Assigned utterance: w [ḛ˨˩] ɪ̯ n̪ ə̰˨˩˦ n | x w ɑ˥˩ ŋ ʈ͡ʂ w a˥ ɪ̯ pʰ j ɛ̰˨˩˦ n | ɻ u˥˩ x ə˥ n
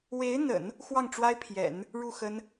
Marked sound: incorrect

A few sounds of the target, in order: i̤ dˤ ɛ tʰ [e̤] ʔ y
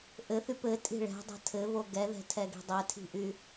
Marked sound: incorrect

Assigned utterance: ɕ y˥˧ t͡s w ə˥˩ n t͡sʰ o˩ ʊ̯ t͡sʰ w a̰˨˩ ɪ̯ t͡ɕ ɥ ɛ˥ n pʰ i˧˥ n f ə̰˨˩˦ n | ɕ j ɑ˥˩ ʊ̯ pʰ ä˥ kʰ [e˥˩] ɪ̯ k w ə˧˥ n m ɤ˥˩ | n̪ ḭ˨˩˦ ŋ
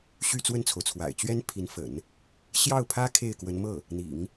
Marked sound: correct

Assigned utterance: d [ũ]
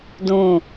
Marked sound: correct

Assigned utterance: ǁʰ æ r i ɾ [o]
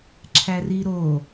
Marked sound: correct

